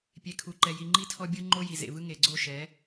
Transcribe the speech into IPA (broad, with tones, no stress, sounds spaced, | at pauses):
pʲ e˨ kʰ u˨ ǃ ɛ˨ j i˨ ŋ͡ǃ i˦ tʰ ɔ˦ bʲ ɯ˦ ŋ͡ǃ o˦ j i˨ z ḛ˨ v ɯ˦ ŋ e˨ ɡ͡ǀ o˦˨ ʃ ɛ˨˦